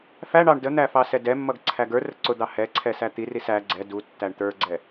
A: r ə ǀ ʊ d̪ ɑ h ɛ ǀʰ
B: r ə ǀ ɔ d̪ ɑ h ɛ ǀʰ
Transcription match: A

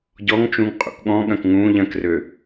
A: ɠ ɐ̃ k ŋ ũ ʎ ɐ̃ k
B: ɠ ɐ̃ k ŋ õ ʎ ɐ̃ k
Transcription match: A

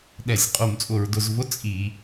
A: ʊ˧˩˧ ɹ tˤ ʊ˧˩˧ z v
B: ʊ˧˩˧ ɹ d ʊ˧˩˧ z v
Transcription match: B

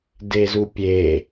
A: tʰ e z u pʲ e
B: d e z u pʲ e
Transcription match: B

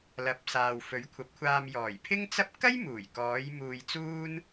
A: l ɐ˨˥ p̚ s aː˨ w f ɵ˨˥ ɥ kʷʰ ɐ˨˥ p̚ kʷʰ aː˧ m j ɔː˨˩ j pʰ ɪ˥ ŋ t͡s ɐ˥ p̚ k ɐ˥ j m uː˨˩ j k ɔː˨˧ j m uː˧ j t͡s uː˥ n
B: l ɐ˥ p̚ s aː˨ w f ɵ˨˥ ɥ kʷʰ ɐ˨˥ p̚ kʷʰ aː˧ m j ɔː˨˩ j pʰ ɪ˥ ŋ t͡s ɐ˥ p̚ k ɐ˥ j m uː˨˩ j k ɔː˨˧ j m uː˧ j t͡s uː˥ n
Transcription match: A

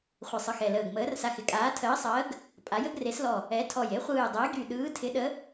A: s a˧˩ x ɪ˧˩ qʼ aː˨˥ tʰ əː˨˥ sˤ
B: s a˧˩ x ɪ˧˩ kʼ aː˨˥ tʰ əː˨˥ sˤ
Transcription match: B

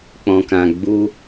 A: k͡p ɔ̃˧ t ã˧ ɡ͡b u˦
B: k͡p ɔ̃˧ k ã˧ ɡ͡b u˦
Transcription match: B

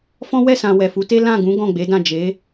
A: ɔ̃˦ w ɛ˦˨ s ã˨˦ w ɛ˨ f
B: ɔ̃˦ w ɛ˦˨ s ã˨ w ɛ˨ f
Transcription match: B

